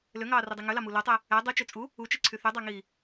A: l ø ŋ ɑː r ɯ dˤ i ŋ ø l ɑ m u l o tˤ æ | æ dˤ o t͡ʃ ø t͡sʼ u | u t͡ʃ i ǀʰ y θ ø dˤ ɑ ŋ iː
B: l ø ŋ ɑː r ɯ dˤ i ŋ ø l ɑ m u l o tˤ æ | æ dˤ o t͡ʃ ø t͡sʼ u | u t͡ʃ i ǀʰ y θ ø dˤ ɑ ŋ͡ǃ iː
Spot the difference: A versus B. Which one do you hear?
A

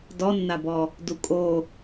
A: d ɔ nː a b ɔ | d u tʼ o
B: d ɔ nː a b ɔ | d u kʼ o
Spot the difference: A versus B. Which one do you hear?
B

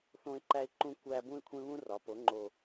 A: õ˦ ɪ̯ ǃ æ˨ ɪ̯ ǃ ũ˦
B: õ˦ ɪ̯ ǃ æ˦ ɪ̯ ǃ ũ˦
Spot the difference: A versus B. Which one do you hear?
B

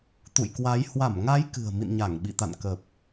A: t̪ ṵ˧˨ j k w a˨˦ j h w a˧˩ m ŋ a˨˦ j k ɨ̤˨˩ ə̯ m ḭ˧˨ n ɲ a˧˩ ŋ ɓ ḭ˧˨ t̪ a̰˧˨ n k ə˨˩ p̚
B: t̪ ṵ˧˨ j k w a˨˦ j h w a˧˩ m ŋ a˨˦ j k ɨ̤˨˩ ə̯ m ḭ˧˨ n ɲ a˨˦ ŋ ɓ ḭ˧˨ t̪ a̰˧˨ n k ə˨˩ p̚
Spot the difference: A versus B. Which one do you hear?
A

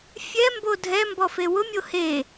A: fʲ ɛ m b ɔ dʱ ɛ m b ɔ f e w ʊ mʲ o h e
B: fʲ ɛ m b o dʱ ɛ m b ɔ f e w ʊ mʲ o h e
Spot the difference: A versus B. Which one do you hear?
B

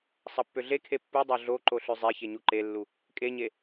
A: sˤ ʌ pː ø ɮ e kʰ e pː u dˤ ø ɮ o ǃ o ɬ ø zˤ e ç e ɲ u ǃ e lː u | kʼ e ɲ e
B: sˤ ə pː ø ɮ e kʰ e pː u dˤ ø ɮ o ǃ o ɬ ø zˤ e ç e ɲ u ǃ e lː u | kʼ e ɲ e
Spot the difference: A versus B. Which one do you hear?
A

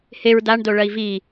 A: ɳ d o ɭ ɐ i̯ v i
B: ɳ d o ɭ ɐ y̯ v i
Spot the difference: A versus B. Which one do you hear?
A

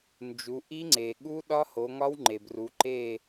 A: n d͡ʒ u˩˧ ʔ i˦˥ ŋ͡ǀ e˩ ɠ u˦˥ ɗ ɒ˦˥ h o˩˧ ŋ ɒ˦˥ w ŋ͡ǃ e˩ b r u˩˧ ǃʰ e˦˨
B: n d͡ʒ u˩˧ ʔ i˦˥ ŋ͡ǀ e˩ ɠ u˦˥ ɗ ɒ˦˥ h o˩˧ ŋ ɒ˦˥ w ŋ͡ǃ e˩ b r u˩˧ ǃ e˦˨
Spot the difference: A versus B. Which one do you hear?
B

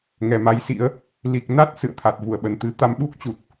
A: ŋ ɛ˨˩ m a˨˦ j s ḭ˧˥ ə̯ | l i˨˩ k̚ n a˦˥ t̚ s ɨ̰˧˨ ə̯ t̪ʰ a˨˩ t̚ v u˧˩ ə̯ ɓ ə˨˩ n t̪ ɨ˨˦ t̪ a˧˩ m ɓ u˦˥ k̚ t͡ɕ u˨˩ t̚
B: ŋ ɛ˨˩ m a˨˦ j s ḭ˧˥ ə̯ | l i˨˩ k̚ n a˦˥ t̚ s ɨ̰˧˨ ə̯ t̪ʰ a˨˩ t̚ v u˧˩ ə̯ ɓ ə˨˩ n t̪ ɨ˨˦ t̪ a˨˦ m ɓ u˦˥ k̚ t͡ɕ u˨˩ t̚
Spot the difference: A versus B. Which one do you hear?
B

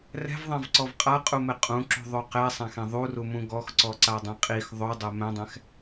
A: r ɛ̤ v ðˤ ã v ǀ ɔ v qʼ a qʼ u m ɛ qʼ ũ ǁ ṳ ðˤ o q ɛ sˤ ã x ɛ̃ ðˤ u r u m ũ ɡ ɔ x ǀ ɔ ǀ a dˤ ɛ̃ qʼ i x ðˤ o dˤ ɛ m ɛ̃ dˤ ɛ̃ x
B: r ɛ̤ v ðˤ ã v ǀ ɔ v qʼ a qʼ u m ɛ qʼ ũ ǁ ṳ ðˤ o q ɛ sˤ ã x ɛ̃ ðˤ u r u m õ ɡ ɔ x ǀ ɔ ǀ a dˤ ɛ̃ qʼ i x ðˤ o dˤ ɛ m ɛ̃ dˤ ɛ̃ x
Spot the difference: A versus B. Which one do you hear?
A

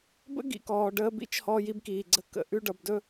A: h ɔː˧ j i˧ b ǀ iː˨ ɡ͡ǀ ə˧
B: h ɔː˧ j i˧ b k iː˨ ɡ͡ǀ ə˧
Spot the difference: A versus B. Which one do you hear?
B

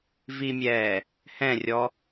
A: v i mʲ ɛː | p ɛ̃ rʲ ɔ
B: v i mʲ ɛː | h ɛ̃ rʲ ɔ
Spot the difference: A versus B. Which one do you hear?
B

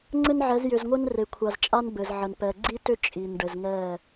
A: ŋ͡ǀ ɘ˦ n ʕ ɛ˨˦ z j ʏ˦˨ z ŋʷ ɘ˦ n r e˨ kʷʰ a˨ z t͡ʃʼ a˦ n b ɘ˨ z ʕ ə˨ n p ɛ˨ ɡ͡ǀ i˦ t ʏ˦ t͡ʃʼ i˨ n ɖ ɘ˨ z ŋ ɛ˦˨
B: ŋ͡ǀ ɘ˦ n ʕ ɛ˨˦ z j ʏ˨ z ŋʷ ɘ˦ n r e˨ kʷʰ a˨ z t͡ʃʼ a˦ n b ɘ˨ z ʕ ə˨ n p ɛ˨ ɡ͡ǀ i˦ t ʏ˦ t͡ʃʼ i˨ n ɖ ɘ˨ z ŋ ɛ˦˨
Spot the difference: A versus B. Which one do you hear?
B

